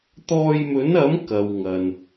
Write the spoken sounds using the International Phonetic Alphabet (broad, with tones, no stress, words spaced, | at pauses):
t̪ɔː˧jmɵ˨˥nɐ˨˥m kɐ˨wŋɐ˨n